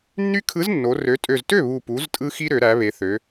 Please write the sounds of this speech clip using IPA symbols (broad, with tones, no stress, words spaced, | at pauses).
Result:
nːy˦kʰɯ˨˥znːo˩˧ rø˩˧tʼø˨˩ztø˥˩ βu˨˩pu˩˧z tʼɯ˦xi˦ ɾø˩˧ɾæ˩˧βe˩˧θø˩˧